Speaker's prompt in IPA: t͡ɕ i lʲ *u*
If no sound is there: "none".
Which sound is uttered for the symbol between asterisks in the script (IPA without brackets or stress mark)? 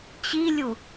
u